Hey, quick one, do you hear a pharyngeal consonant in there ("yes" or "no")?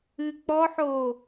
yes